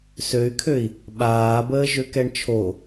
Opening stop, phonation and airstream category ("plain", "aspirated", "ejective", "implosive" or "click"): aspirated